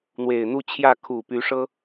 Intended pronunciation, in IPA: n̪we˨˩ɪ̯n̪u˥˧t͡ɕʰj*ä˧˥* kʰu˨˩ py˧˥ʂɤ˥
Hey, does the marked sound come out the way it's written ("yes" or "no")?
no